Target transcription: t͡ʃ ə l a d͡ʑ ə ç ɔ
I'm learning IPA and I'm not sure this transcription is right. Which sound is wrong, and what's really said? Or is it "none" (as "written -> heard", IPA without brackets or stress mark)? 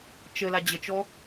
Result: ç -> t͡ʃ